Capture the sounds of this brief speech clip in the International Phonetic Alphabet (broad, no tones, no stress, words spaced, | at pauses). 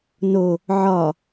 no | ʕɒ